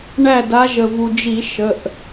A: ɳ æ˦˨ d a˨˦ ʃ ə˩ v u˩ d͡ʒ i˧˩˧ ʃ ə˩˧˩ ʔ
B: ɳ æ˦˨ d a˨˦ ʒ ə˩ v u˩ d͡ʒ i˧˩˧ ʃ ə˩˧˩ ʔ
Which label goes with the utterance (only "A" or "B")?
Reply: B